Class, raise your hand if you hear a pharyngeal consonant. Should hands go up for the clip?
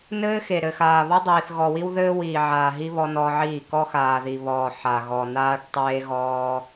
yes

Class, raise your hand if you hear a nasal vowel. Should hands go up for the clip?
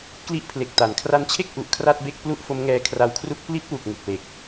no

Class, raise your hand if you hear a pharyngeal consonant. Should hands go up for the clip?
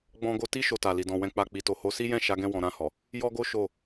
no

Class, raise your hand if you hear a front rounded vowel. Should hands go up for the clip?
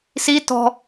no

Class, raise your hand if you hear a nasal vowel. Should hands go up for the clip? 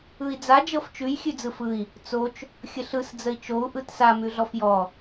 no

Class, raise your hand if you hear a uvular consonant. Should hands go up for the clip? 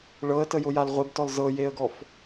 yes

